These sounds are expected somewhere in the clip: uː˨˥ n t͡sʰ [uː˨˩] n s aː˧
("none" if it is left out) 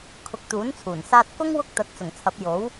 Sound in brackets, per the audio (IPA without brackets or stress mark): uː˨˩